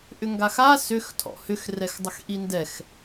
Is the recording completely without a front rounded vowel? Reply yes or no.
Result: no